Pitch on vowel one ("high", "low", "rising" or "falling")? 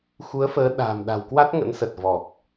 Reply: rising